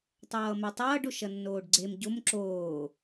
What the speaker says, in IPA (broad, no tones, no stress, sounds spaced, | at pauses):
tˤ ʌː m ɛ tˤ ʌː ɖ o ʃ ʌ nː oː ɖ ɡ͡ǀ e m ɟ o m ǁ oː